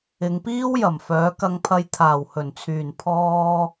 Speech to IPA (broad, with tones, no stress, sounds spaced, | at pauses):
ɪ˨˧ ŋ p iː˥ w j ɐ˨˩ m f œː˨˥ k ɐ˧ ŋ pʰ ɐ˧ j t̪ʰ aː˨˩ w h ɵ˨˩ n t͡sʰ yː˨˩ n pʰ ɔː˧